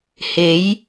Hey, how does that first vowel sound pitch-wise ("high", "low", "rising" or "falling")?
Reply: rising